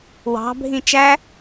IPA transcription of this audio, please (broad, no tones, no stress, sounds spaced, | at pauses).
w ɑ̤ bʱ ĩ t͡ʃ æ